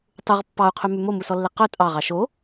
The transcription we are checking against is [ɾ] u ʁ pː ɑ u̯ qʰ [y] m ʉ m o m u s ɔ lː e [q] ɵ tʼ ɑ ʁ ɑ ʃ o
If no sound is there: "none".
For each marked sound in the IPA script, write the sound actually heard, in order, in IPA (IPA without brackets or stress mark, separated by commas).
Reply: tˤ, y, q